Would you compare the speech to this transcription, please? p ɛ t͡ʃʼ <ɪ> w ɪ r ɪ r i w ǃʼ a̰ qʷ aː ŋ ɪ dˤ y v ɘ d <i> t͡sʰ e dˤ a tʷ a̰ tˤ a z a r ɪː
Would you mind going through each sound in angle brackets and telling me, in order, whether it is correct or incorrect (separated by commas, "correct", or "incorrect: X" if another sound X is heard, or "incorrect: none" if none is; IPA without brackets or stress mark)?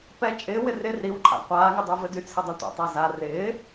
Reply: incorrect: ɪː, incorrect: y